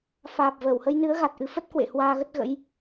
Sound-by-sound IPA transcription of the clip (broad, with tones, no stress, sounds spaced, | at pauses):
f aː˨˩ p̚ v əː˧˩ w h ə˧ j n ɨ˨˦ ə̯ ɣ a˨˩ t̚ ʔ ɨ˨˦ f ə˦˥ t̚ k w ḛ˧˨ h w aː˧ ɣ ə˦˥ t̚ ɣ ə̰˧˥ j